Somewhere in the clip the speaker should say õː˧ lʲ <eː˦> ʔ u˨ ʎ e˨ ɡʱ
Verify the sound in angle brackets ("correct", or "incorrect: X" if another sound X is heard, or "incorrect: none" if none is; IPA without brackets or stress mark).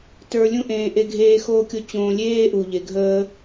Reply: correct